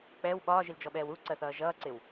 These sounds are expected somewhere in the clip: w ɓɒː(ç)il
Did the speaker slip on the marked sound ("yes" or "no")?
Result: yes